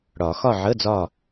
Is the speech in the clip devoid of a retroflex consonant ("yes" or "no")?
no